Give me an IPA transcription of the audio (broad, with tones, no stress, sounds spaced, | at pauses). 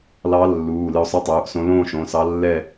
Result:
l ɑ˧˥ lː uː˩˧˩ l ɨ˧ o̯ sˤ ɨ˧˥ tˤ uː˩˧˩ ʔ s õ˧˥ l õː˥˧ ʃ õ˩˧˩ s ɑ˧˥ lː ɛ˥˧